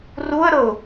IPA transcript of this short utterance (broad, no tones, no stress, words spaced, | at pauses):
ruə̯ɾɤʊ̯